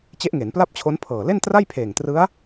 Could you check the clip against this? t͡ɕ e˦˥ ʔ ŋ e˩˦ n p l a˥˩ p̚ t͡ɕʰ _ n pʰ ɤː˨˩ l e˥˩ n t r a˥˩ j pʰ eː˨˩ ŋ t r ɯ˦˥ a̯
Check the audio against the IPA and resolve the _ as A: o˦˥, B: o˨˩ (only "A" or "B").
A